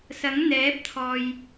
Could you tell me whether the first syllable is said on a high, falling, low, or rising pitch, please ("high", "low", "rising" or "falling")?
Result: rising